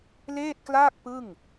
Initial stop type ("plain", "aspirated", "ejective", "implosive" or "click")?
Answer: plain